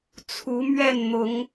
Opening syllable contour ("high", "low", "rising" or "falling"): rising